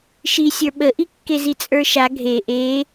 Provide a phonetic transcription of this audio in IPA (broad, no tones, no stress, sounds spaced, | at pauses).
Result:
ʃ i sʲ ə˞ ɓ ə ʔ i kː e z i t͡sʼ ə˞ ʃ a ɡʱ e ʔ e